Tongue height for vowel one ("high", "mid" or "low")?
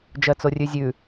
mid